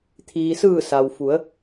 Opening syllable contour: low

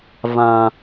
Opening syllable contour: low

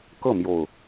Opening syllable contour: falling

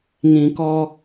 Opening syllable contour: low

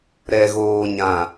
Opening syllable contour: low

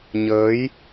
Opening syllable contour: rising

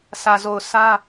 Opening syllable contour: low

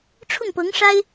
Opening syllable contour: falling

